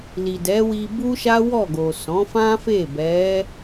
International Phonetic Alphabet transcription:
l i˨ d ɛ˨˦ w i˧ b u˦ ʃ a˦ w ɔ˦˨ ɡ o˨ s ɔ̃˨˦ f ã˦ f e˦˨ b ɛ˨˦

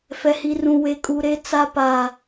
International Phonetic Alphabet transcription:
f ɛ˦ h i˦ r ũ˦ w e˦ kʼ u˦ ɾ e˦ t͡s a˦ p a˦

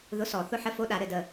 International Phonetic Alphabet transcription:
ð ʊ˧˥˧ s ɔ˧˩˧ θ ʊ˦˥ ħ ə˧˥˧ f o˧˥˧ ɗ a˧˩˧ ɾ ɘ˧˩ d ə˧˩

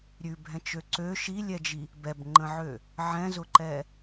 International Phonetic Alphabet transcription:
ɾʲ ʉ bʱ ɛ̃ t͡ʃ ø ǀ ø ʃ i lʲ ɛ d͡ʒ i | b ɛ b ŋ͡ǃ ə̃ ʕ ø | ʕ ɛ̃ z ʊ ǃ ɛ

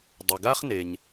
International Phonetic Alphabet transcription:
dˤ ɘ˩ ɡ a˥ χ n e˩ ɲ

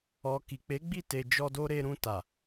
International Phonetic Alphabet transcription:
ɔ˨ k i˨ k͡p e˨˦ ɡ͡b i˦˨ t e˨ d͡ʒ ɔ˧ d o˧ ɾ e˧ ɾ ũ˧ t a˨

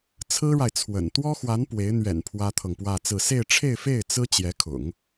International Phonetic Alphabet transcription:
t͡sʰ ɹ̩˥ ɻ a˨ ɪ̯ t͡sʰ w ə̰˨˩ n t̪ w ɔ˥ x w a˧˥ n p w e˧˥ ɪ̯ n̪ ɥ ɛ̰˨˩ n pʰ w ä˥ t̪ʰ ɤ˨ ŋ p w ä˥˧ t͡s ɹ̩˥˧ s e˥˧ ɪ̯ ʈ͡ʂʰ e˥˧ ɪ̯ f e˥˩ ɪ̯ t͡s ɹ̩˥ t͡ɕ j ɛ˧˥ kʰ ʊ̰˨˩˦ ŋ

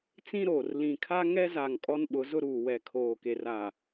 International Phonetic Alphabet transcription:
t͡s ĩ˦ ɾ oː˨ r l ĩ˨ kʰ a˦ ŋ ɛ˦ z a˨ ŋ kʼ ɔ˦ n ɓ ʊ˨˦ z ʊ˦ ɾ uː˨ w ɛ˨ kʰ oː˨ k e˨ r a˨

